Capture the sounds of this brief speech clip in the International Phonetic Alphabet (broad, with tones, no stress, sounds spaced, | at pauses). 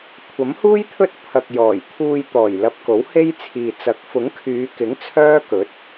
kʷʰ ɐ˨˥ m h uː˥ j t̪ʰ ɵ˥ t̚ pʰ ɐ˨ k̚ j ɔː˨˩ j t̪ʰ uː˧ j t̪ ɔː˨˩ j l ɐ˧ p̚ k o˨˥ w h e˥ j t͡sʰ iː˨ t͡s ɐ˨˥ k̚ f ʊ˨˥ ŋ kʰ yː˨˧ k ɪ˨˥ ŋ t͡sʰ œː˥ k ɵ˨˥ t̚